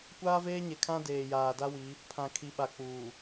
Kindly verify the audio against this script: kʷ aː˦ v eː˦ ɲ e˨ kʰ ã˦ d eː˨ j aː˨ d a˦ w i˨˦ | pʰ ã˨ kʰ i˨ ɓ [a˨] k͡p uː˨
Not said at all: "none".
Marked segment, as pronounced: a˨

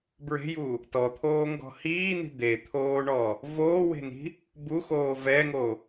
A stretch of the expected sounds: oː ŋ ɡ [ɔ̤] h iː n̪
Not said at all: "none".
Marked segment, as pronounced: ɔ̤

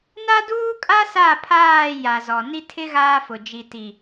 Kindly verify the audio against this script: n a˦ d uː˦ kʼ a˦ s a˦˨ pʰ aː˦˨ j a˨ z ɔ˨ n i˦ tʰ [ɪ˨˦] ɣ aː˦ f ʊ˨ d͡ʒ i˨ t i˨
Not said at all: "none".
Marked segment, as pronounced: ɪ˦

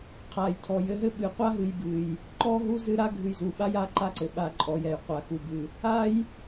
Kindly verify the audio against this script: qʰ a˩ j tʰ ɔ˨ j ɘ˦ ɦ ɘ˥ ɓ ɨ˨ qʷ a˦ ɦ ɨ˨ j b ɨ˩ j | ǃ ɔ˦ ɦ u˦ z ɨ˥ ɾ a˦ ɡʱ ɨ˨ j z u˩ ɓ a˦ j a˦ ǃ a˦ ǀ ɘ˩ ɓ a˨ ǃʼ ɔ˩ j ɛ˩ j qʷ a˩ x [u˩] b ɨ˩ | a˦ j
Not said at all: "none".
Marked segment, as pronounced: u˩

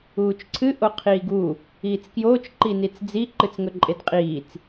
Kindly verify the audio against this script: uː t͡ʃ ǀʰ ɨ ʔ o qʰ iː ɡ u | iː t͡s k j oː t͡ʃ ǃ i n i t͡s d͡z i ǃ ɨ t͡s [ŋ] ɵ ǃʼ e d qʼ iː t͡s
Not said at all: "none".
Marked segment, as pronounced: ŋ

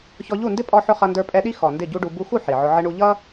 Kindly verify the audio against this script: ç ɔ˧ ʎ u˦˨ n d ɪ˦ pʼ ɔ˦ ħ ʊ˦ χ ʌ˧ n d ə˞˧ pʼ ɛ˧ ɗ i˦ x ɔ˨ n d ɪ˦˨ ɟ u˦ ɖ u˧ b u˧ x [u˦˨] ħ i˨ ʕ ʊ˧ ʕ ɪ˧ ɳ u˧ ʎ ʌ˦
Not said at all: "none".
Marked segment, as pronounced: u˦˨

